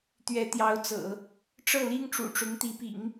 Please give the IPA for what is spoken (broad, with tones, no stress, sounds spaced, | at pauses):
t̪ ɥ ɛ˧˥ t̪ j ɑ˧˥ ʊ̯ t͡s ɤ̰˨˩˦ | ʈ͡ʂ ɤ˥˩ l i˥ ŋ ʈ͡ʂ ṵ˨˩ ʈ͡ʂ ʊ˧˥ ŋ t̪ i˧˥ p ḭ˨˩˦ ŋ